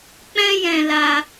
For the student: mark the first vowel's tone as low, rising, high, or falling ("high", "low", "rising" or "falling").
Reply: high